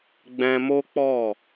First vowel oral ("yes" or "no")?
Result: no